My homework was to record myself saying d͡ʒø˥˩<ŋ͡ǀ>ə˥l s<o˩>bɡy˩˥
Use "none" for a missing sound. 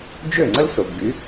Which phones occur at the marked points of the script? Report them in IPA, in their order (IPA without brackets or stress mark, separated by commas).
ŋ͡ǀ, o˩